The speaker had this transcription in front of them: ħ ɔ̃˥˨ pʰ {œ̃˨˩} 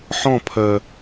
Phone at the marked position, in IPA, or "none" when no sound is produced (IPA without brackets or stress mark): œ˨˩